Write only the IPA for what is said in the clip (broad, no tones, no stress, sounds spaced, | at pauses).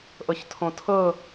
ʔ ɤ ç tʰ õ tʰ ɤ